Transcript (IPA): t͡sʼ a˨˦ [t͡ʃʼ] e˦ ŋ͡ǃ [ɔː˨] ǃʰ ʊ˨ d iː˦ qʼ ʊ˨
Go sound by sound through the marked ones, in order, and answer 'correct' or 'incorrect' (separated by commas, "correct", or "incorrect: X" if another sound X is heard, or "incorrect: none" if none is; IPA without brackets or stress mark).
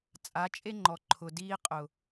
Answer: correct, incorrect: ɔ˨